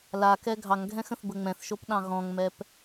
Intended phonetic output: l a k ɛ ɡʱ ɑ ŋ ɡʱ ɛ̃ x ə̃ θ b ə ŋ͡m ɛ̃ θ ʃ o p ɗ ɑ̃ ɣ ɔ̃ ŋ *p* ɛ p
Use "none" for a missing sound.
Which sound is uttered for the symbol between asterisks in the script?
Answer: m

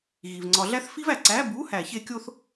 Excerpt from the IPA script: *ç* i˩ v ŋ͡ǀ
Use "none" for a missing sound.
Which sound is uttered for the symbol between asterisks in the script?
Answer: ɣ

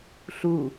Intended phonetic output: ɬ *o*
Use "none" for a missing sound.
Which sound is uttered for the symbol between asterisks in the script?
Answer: u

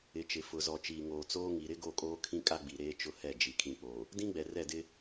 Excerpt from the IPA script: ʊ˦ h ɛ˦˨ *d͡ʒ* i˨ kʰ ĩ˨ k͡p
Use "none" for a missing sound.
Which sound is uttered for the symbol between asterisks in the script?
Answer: d͡ʒ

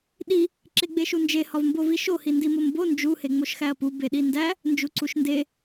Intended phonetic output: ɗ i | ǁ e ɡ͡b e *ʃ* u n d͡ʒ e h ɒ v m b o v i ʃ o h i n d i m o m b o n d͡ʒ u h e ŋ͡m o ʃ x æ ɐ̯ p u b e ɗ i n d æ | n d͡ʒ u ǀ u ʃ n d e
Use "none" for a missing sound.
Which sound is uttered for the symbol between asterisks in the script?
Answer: ʃ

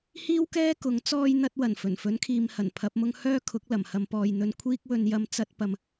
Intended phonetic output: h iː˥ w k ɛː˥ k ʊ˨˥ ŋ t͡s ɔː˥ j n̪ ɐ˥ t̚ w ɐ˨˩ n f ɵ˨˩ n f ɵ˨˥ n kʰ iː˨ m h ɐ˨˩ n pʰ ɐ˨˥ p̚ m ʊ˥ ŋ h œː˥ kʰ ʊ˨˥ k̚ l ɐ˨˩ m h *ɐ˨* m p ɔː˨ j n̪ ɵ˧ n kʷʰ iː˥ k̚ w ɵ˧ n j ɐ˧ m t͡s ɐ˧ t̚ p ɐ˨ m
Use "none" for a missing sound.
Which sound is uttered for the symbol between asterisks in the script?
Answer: ɐ˨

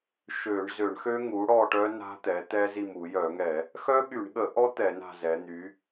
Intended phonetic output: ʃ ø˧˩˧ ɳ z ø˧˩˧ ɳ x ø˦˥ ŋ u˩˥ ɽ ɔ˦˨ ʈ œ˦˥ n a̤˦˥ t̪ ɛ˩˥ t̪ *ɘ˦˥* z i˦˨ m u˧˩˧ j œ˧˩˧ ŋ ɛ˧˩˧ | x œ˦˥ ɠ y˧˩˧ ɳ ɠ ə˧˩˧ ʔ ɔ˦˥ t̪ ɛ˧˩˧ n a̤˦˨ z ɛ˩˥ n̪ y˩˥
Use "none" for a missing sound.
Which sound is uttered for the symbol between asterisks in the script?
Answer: ɛ˦˥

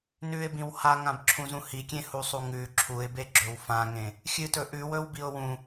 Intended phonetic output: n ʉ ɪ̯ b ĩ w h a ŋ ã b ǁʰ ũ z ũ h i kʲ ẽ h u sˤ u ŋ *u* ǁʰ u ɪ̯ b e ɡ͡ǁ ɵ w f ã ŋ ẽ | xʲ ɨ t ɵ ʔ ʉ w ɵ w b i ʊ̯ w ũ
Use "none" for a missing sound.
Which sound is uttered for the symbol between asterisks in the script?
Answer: ʉ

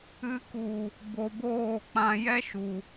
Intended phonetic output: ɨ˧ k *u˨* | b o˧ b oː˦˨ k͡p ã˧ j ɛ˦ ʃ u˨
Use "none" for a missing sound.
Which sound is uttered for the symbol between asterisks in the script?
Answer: u˨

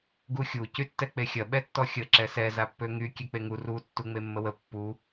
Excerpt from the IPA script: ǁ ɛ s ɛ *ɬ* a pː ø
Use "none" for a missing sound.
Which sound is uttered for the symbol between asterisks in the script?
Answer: z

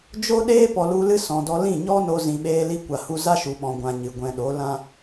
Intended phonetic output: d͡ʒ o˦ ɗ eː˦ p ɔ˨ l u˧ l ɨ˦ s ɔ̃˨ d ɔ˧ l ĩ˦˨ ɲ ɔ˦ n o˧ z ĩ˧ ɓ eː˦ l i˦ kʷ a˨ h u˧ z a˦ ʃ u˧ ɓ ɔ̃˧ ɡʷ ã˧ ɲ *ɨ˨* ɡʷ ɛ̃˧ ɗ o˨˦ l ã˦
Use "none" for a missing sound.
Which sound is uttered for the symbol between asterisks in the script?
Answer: ɨ˨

